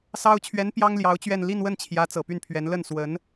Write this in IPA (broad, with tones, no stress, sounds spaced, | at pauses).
s ɑ˥ ʊ̯ t͡ɕʰ ɥ ɛ˧˥ n p j ɑ˥ ŋ l j ɑ˧˥ ʊ̯ t͡ɕ ɥ ɛ˥˧ n l i˥˧ n w ə˥˩ n t͡ɕʰ j ä˧˥ t͡s ɤ˨˩ p y˥˩ n pʰ ɥ ɛ˧˥ n l ə˥˩ n s w ə˧˥ n